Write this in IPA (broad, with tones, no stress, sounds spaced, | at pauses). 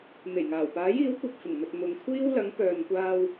n̪ e˨˩ j ŋ aː˨˩ w p aː˨˥ j iː˨˥ w kʷ ɐ˧ p̚ f ɪ˨˩ ŋ m ɵ˨ t̚ m ʊ˨ ŋ kʷʰ iː˥ w l ɐ˨˥ ŋ p œː˨ n kʷ aː˧ w